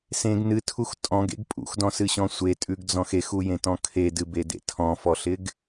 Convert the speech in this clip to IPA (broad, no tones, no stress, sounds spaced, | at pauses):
s ẽ ɡ n ɨ tʰ u x tʼ ɔ̃ ɡ ḛ ɡ pʼ ṵ x d ɔ̃ s ɨ ɕ ɔ̃ sʷ e tʼ ʉ ɡ d͡z ɔ̃ x e x u j ẽ t ɔ̃ kʰ e d ɨ b e d ḛ tʰ ɔ̃ f ɔ ɬ ɪ ɡ